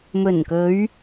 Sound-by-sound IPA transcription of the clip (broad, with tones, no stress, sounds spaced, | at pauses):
m ɵ˨˩ n k ɵ˨˧ ɥ